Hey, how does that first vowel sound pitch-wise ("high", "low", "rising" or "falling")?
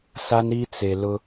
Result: high